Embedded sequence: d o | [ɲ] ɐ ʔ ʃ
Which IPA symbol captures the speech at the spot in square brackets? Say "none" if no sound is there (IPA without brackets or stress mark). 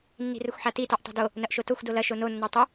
n